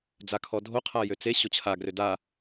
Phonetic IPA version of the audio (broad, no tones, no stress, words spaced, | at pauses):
d͡zakʰɔdʱo qʰajøt͡se ɕot͡ɕʰa ɡrøda